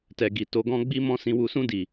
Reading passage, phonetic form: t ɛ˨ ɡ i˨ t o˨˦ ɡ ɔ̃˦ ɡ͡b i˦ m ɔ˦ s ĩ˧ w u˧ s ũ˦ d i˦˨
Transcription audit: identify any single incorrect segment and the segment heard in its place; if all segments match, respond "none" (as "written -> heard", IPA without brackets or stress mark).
ɔ˦ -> ɔ̃˦